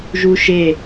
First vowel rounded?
yes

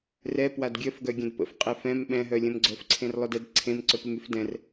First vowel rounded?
no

